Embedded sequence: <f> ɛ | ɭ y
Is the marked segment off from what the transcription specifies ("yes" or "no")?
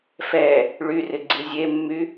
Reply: no